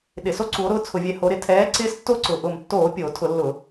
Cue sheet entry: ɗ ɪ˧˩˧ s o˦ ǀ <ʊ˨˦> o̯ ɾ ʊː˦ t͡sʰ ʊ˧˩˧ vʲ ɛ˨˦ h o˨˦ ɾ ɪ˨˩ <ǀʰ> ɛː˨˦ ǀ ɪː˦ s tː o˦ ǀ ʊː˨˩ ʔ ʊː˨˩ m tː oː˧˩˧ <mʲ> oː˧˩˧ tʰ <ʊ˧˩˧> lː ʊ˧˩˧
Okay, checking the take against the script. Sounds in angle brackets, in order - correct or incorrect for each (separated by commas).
incorrect, incorrect, incorrect, correct